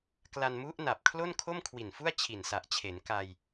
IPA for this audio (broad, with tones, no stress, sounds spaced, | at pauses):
k l a˧ n m u˦˥ ʔ n a˨˩ p̚ kʰ l o˥˩ n kʰ o˥˩ m kʰ w i˨˩ n f u˥˩ a̯ t͡ɕʰ i˨˩ n s a˨˩ ʔ t͡ɕʰ e˩˦ n k a˧ j